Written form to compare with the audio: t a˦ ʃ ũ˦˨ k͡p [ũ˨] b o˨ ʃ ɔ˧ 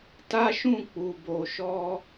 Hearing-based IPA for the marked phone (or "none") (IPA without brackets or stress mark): u˨